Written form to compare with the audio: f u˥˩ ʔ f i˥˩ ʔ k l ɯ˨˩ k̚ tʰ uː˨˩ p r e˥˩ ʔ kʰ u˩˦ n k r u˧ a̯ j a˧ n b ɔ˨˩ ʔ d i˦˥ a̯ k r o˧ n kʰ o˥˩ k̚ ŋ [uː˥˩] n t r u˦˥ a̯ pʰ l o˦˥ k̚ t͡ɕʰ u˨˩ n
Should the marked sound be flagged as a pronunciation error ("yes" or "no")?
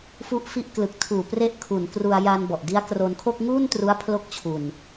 no